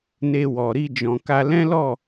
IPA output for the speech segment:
n e˧ w ɔ˨ ɾ i˧ d͡ʒ ɔ̃˨ k a˧ l ɛ̃˦ l ɔ˦˨

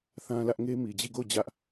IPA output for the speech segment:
θ ã˦ l ä˦ ʔ ŋ e˦ m i˨ d͡ʑ i˦˨ ɡ o˦˨ ʊ̯ d͡ʑ ä˦ ʔ

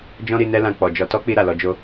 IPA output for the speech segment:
d͡ʒ ɔ̃˦ ɾ i˧ n ɛ˦ l ã˧ k͡p ɔ˨ d͡ʒ ɔ˧ t ɔ˦ k͡p i˧ ɾ a˨ l ɔ˧ d͡ʒ o˦

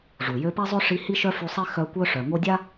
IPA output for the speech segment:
ʐ u˩ j ø˦ p e˥ zˤ ø˥ ʂ i˦ h i˥ ʃ œ˥ f y˦ sˤ i˥ x œ˦ kʷ œ˥ ʂ œ˨ ŋ o˦ dʲ a˥

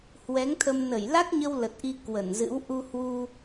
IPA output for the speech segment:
h w ɛ˨˦ ŋ t̪ʰ ə˧ m n ə˧˩ j l a˦˥ k̚ ɲ ə˧ w l ə˨˩ t̚ ʔ i˧ k w ə˧˩ n z ɨ̰˧˥ w ʔ u˧ h w u˧

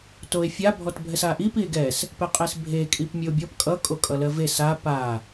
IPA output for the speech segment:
t o e̯ fʲ a bʱ ɔ t bʱ ɛ s a ʔ i p i e̯ ɡ ɛ s | p ɛ qʼ e s bʱ e kʼ i p mʲ ɘ o̯ bʲ ɔ p kʼ ʌ kʼ o kʼ ʌ l ɜ v e s a p a

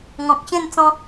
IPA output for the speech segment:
ŋ ɔ̃˨ k̚ ɕ ẽ˥˧ n t͡s ɔ̃˧

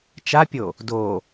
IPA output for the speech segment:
t͡ʃ a pʲ o | d o

